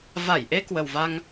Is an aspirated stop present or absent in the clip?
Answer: absent